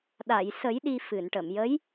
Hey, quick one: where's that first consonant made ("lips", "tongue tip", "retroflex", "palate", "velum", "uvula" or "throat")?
tongue tip